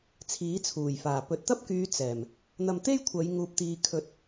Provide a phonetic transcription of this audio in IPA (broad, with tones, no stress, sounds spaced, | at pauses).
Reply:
t͡sʰ iː˨˥ t͡sʰ uː˨˩ j f aː˨˩ p ɵ˨ t̚ t̪ ɐ˥ p̚ k yː˨˧ t͡s ɛː˨˩ m | n̪ ɐ˧ m t̪ e˥ j kʷʰ ɐ˨˧ j ŋ uː˧ p̚ t̪ iː˧ kʰ ɵ˨˥ t̚